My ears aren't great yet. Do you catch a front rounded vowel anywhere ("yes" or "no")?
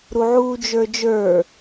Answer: no